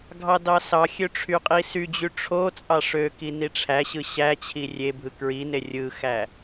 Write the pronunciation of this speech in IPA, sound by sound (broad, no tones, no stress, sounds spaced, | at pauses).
ɡʱ ɑ d ɑ s ɑ xʲ ø ʈ͡ʂʰ y qʼ i s y d͡ʑ y ʈ͡ʂʰ o t͡sʼ ɑ ʂ ø k i n i ʈ͡ʂʰ æ ɕ ɯ ɕ æ t͡ɕʰ i rʲ e bʱ ɯ k ɹ i n e rʲ ɯ x æ